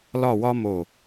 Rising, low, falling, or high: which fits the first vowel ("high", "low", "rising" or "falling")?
falling